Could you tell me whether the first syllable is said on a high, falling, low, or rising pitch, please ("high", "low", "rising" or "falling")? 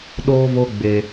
high